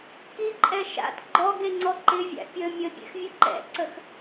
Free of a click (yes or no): no